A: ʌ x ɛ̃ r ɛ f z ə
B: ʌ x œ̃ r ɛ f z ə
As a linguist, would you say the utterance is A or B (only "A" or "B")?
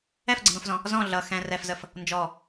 A